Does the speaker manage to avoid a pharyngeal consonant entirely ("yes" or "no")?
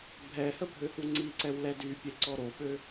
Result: yes